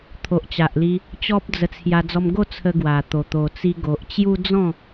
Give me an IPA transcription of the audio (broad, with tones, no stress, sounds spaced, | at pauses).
t̪ʰ o˨ ʔ t͡ɕ a˨ ʔ l i˧ | t͡ɕ ɔ˦ p̚ d͡z ə˧ t͡sʰ j a˧ d͡z ɔ˧ m ɡ o˥˧ t͡sʰ ə˧ ɡ w a˨˩ t̪ o˨˩ t̪ o˨˩ t͡s i˧ ɡ o˨ ʔ t͡ɕ j u˦ d͡z ɔ̃˥˧